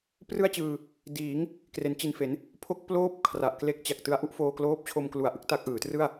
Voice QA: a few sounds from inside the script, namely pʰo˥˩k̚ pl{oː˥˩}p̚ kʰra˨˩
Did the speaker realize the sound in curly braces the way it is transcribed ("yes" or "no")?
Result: yes